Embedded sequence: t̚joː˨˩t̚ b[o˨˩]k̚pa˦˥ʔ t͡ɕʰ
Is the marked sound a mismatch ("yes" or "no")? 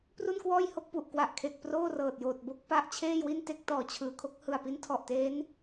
yes